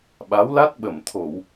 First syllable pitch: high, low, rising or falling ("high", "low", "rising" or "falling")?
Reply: rising